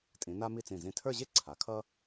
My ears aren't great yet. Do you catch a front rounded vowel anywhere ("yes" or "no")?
no